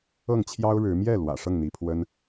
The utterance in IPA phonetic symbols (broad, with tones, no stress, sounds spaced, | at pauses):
ɤ˥˩ ŋ t͡ɕʰ j ɑ˥ ʊ̯ ɻ ɻ̩˧˥ m j ɛ˥˩ l w ä̰˨˩ ʂ ɤ˥˩ ŋ n̪ i˧˥ pʰ w ə˥ n